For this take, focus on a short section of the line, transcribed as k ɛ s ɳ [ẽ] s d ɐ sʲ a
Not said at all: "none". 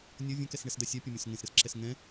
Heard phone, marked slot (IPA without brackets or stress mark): e